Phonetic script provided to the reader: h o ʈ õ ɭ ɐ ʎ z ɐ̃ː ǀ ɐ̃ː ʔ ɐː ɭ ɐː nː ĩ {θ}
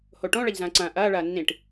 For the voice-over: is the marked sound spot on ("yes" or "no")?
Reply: no